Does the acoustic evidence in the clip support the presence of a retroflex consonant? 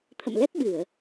no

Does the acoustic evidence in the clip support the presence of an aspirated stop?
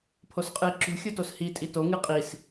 yes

